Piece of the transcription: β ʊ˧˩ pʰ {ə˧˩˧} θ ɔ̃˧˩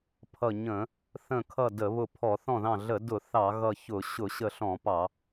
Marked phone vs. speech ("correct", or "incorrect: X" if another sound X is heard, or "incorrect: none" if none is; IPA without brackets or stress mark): incorrect: ɔ˧˩˧